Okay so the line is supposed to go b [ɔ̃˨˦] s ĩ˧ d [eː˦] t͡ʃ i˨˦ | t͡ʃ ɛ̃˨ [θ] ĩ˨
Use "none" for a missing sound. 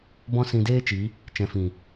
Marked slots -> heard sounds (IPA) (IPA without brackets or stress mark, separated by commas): ɔ̃˦, eː˦, f